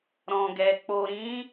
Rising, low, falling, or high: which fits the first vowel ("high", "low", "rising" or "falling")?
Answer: low